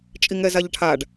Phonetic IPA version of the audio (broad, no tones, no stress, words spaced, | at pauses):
t͡ʃʼiŋɛzaʎʈʰaɖ